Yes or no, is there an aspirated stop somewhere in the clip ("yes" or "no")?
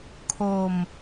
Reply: yes